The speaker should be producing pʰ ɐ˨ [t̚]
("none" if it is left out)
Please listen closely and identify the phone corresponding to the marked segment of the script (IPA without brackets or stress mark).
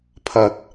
t̚